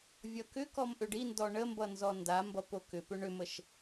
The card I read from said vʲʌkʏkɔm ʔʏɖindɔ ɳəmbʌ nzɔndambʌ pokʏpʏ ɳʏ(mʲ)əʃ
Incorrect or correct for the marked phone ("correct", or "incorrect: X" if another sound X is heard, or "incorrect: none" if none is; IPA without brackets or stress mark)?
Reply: incorrect: m